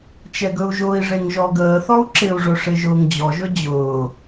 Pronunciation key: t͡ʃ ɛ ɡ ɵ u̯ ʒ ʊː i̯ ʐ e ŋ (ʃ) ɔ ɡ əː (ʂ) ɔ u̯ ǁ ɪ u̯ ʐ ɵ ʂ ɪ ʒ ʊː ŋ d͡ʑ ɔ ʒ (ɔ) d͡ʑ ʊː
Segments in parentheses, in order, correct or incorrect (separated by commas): incorrect, incorrect, incorrect